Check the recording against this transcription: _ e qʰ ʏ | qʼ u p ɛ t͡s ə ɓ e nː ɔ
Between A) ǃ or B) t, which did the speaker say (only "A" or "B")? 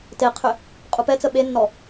B